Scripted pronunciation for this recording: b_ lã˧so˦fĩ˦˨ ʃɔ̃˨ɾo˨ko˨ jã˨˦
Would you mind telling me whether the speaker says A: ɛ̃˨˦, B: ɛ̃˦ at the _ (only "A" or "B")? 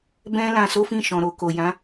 B